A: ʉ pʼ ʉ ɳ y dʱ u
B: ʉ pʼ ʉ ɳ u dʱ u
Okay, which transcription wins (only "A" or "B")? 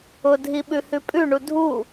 B